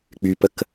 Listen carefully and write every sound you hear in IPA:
k͡p y p ə k

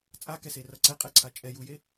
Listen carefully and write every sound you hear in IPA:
t͡sʼ a k ɛ s e r ʌ ǀ ɛ qʼ ɛ ǀʰ a t͡ʃʼ ɛ j u j e

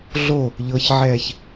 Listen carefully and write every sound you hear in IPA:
ɮ o | ʎ ɤ ç ʕ ɛː ç

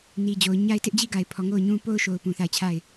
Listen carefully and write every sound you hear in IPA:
n i˨ d͡ʑ o˨ ʊ̯ ɲ a˦ ɪ̯ t ɪ˦ ʔ d͡ʑ i˦ ɡ a˨ ɪ̯ pʰ ɔ˨ ŋ o˦˨ ʊ̯ ɲ ũ˦ p o˦ ʊ̯ ʃ o˨ ʊ̯ p ũ˨ θ a˦˨ ɪ̯ t͡ɕʰ a˦˨ ɪ̯

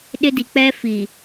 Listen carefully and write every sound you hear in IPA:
ɗ ɪ˦ d i˨ k͡p ɛ˦ f i˨

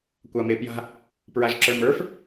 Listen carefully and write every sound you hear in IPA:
kʷ a m e p j a̤ | p ɹ a ʒ ǁ ə˞ m ə˞ f

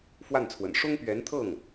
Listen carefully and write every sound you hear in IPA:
f w a˥˩ n t͡sʰ w ə̰˨˩ n ʂ ʊ˥ ŋ p ɥ ɛ˧˥ n t̪ʰ ɤ˥˩ ŋ

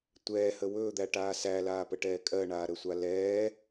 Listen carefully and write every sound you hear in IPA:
tʷ ɛː h ə w ɵː d̪ æ ʈ aː s æ l aː p ə ʈ ɛː kʼ ɜ ɳ aː ɾ ə sʷ a l ɛː

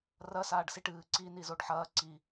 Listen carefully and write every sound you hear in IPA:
r ɐ s aː ɖ s i ʈ ɨː ǀ i n i z o ɖ ħ ɐː ǀ i

